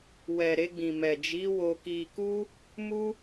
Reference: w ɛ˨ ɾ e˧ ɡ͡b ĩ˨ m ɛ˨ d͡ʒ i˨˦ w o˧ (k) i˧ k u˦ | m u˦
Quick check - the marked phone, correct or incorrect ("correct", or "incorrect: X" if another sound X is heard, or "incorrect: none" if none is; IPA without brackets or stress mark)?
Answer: correct